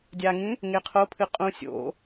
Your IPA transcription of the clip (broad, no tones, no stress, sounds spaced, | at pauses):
dʲ a ŋ ĩ | ŋ e qʰ o pʰ ɨ qʼ ũ sʲ o̰